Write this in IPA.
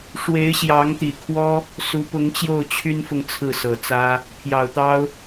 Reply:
ʂ w e˧˥ ɪ̯ ɕ j ɑ˧˥ ŋ t̪ i˨˩ kʰ w ɔ˥ | s u˧˥ p ʊ˧˥ ŋ t͡ɕ j o˥˩ ʊ̯ t͡ɕʰ y˥ n f ʊ˥˧ ŋ t͡sʰ ɹ̩˥˩ s ɤ˨˩ t͡s ä˥ | pʰ j ɑ˨˩ ʊ̯ t̪ ɑ˥ ʊ̯

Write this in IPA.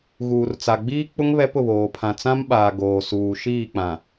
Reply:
ɣ uː˨ r t͡s a˨ ɡ͡b iː˦ k͡p ʊ˦ ŋ β ɛ˦ p ʊ˦˨ β oː˨ pʰ ã˨ t͡s ã˦ m ɓ aː˨ ɡ oː˨ s uː˨ ʃ iː˦˨ k͡p ã˨

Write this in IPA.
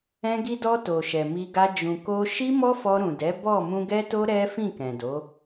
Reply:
ɛ̃˧ ɡ i˧ d ɔ˧ t o˨ ʃ ɛ˨ m i˧ ɡ a˧ d͡ʒ ũ˨ k o˧ ʃ i˦ m ɔ˦ f ɔ˧ ɾ ũ˨ d ɛ˨˦ b ɔ˦˨ m ũ˧ ɡ ɛ˦ t o˦ ɾ ɛ˦ f ĩ˦˨ k ɛ̃˨ d o˨˦

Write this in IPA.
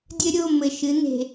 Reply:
dʲ ɘ˦ ɾʲ o˦˨ m ɘ˨ ʃ ɨ˨˦ n̪ e̤˨

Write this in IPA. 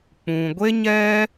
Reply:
k͡p ũ˨ ɡʷ e˦ ɲ ɛ˦

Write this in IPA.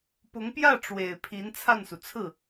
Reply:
p ʊ˧˥ ŋ p j ä˥˩ ʈ͡ʂ w e˨˩ ɪ̯ pʰ i˧˥ n t͡sʰ a˥˩ n s u˩ t͡sʰ ɹ̩˥˩

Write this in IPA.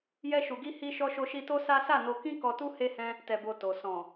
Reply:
j ɛ˧ ʃ u˨ ɡ i˧ h i˦ ʃ ɔ˦ ʃ o˦ ʃ i˦ t o˦ s a˦ s a˦˨ n o˧ k ĩ˦ k ɔ˧ t u˦ h e˦ h ɛ̃˦ | t ɛ˨ b o˨ t o˨ s ɔ̃˨

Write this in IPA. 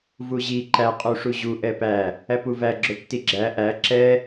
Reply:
v u ʑ i ǃ æ qʼ u ʂ u ʑ u ʔ ɛ p æ | æ p u v æ ɡ͡ǁ ʊ tː i ɡ͡ǁ æ ʔ æ ǁ ɛ

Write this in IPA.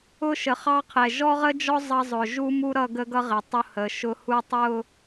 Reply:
ʊ˦ ʃ ə˨ χ ɑ˦ qʰ ɛ˨ ʒ ɔ˦ ʁ ə˦ d͡ʒ ɔ˦ zˤ ɑ˦ zˤ ʊ˨ ʒ u˦ m u˦ ɾ ʌ˦˨ ɡ ə˦ ɡ ʌ˦ ʁ ɪ˨ tˤ ʊ˦ h ə˨ ʃ ʊ˦ h u˦ tˤ ʊ˦˨

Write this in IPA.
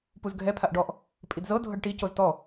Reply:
p u z ɡʱ ɛ pʰ a ʔ ɖ ɔ ʔ | pʼ i d z ɤ dʱ ɤ ɖ ʈ i c o z t ɔ

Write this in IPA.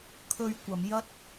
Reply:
kʰ ɵ˧ ɥ kʷ ɐ˨˧ m j ɐ˥ t̚

